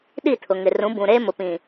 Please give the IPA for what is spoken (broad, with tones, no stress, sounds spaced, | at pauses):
ɗ i˦˨ tʰ ʊ˨ ŋ ɪ˨ r ũ˨˦ b ũ˨ ɾ eː˦ m ʊ˨ p ĩ˨